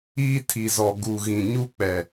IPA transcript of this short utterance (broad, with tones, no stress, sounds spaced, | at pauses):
iː˦ tʰ i˨ z ɔ˨ ɡ u˨ ɣ ĩ˨ ɲ u˦ k͡p ɛ˨